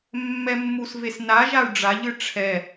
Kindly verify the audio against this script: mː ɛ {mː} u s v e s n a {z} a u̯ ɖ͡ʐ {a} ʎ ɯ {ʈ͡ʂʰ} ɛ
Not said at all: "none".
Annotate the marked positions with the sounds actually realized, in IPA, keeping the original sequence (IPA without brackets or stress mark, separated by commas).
mː, ʒ, a, ʈ͡ʂʰ